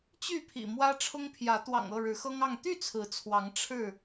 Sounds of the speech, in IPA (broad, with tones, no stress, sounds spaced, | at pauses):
t͡ɕ y˥˨ pʰ ḭ˨˩ m w ä˦ ʈ͡ʂʰ ʊ˦ ŋ pʰ j ä˨˦ t̪ w ɑ̰˨˩ ŋ ɤ˥˨ ɻ ɻ̩˨˦ x ɤ˦ ŋ ɑ˥˨ ŋ t̪ y˥˨ t͡sʰ ɹ̩˨˦ t͡sʰ w ɑ˨˦ ŋ ʈ͡ʂʰ ɻ̩˥˨